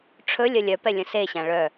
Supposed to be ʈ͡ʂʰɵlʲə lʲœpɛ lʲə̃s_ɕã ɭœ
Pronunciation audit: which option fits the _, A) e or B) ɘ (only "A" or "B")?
A